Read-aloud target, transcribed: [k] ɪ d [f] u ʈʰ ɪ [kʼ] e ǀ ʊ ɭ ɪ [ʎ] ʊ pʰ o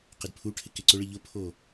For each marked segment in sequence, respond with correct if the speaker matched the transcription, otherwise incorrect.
incorrect, incorrect, incorrect, correct

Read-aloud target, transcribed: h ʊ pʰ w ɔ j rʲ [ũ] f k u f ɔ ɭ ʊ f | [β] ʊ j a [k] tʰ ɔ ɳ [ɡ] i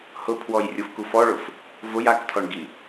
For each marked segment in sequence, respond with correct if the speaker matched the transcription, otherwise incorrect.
incorrect, incorrect, correct, correct

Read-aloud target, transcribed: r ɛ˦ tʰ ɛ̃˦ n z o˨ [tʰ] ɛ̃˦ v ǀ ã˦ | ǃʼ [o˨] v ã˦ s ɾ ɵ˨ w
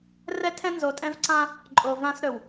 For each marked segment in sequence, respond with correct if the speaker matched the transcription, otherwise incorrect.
incorrect, correct

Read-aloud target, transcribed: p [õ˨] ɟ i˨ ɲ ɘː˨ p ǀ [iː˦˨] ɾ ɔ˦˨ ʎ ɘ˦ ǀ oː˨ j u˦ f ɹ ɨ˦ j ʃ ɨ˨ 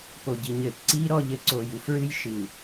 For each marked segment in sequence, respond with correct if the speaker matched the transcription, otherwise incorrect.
incorrect, incorrect

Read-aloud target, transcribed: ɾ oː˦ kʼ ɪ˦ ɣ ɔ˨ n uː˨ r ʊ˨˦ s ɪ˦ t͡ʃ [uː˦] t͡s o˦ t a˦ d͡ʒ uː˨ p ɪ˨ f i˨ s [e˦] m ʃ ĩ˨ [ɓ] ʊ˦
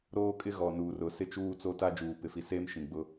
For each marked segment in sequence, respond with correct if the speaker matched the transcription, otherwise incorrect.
correct, incorrect, incorrect

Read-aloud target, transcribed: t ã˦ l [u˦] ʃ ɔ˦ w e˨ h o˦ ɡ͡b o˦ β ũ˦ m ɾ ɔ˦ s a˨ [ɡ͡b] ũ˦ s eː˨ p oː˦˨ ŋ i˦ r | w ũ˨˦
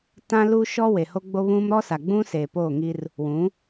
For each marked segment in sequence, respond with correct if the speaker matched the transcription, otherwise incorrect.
correct, correct

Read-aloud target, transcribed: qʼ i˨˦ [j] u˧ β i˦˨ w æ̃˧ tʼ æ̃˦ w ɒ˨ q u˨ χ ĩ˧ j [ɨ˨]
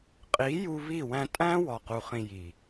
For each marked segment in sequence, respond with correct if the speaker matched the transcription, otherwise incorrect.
correct, incorrect

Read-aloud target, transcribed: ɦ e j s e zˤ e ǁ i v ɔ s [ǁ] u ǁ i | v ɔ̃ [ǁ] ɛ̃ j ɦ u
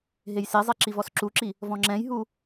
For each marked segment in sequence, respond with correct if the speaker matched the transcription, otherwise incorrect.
correct, incorrect

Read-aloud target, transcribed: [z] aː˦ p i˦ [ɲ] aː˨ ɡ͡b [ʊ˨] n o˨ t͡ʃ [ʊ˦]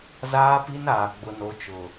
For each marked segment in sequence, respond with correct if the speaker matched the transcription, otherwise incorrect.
correct, incorrect, correct, incorrect

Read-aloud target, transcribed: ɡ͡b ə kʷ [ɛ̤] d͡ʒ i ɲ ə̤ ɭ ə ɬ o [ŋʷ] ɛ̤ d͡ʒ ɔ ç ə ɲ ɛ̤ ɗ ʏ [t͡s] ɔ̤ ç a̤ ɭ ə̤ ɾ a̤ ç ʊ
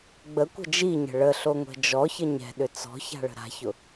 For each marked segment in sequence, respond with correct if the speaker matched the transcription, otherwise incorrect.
incorrect, correct, correct

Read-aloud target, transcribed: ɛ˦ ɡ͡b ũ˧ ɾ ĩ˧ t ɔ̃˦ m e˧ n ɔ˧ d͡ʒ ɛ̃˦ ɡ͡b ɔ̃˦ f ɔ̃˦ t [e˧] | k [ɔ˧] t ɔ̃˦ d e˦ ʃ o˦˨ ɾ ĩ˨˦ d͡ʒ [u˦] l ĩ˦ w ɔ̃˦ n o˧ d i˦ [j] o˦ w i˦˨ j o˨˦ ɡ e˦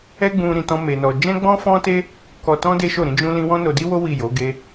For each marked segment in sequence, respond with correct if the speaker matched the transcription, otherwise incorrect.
incorrect, correct, incorrect, incorrect

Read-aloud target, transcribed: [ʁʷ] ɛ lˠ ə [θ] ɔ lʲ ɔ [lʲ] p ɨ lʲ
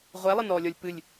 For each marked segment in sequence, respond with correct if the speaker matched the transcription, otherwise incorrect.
correct, incorrect, correct

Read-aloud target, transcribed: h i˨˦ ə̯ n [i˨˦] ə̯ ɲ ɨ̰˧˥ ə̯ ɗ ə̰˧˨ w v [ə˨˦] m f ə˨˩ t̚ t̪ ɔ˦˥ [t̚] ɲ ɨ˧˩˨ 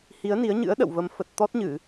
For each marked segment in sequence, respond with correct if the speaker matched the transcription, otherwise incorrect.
correct, correct, correct

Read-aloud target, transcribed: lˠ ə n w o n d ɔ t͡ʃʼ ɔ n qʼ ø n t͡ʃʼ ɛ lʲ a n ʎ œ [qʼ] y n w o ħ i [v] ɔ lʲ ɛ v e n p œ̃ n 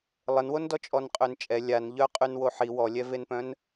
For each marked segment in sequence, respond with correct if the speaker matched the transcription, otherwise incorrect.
correct, incorrect

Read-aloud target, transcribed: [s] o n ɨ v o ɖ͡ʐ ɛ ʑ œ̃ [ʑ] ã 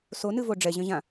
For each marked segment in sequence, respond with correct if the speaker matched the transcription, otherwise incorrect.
correct, correct

